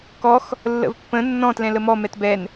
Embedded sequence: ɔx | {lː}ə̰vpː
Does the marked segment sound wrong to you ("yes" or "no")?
no